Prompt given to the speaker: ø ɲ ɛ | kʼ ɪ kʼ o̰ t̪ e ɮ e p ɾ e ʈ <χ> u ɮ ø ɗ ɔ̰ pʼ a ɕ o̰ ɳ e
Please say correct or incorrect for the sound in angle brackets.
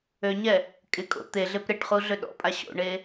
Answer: correct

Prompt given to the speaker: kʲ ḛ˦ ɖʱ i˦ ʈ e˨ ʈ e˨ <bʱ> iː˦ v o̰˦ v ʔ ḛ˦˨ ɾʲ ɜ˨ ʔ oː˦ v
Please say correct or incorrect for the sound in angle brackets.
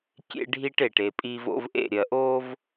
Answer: incorrect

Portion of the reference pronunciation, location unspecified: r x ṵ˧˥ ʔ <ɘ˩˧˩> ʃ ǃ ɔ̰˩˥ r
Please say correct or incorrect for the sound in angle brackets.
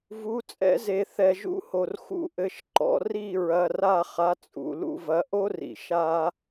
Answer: correct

